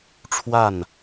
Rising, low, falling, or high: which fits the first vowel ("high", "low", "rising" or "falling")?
falling